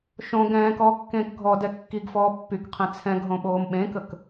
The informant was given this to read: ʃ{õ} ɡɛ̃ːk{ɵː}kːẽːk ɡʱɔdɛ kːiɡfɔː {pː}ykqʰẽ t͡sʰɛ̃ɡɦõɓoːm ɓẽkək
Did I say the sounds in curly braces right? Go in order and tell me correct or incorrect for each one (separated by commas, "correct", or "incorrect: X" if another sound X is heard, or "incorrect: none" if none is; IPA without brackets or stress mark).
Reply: correct, incorrect: ɔː, correct